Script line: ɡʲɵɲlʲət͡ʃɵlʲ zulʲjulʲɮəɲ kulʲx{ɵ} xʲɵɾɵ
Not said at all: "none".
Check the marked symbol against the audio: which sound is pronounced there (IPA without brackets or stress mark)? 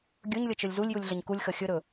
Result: ə